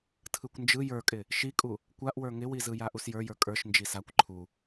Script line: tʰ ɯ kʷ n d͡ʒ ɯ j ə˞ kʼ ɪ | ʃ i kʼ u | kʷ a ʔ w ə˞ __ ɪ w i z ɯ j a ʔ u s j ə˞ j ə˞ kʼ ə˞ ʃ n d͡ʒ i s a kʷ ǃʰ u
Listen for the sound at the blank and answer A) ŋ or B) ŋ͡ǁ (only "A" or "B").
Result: A